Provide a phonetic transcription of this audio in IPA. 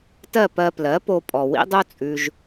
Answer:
t ɜ˥˩ p ɜ˧ p l ɜ˩˥ p o˧ pʼ ɔ˩ w ḭ˥ dˤ o˥ t͡sʼ ʉ˧ ʒ

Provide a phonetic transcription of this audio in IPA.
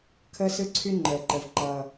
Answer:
kʰ əː˦ s ɯ˦ ǀʰ y˦ ŋ͡ǃ əː˨ ǃ ə˨ v ǃ ʌː˦

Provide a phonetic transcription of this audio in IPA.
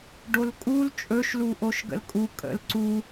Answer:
ɖ o l kʼ u l t͡ʃʼ ɵ ʃ l u ʔ o ʃ ɡ ə̰ l kʼ u kʼ ə̰ l ǀ u

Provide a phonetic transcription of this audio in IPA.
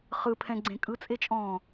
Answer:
χ ɯ pʰ ɛ̃ ɡ͡ǀ ẽ kʼ ɯ t͡sʼ e t͡ʃʼ ɔ̃ː

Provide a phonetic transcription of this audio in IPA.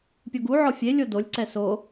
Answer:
pʲ o ɡ u ʕ ɔ fʲ e lʲ o d o lʲ ǀ ɛ s o

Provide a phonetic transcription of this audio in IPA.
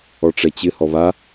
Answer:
ɔ ʈ͡ʂ ɛ t͡ɕ ɪ h ɔ β a

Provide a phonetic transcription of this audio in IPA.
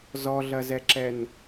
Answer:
z ɔ ɮ ɐ z ɛ ǁ ɛ n

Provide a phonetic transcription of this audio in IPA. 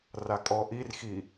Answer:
r a kʼ ɔ ʔ i r x i

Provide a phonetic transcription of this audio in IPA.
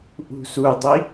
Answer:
ʔ ṳ s u dˤ i

